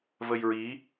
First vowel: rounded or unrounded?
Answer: unrounded